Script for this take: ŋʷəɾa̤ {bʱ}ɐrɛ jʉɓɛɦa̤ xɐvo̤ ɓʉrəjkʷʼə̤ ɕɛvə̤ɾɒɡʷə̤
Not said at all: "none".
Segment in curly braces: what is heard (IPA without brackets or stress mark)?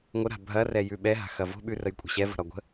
bʱ